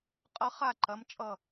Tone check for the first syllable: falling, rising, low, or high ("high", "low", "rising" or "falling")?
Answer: rising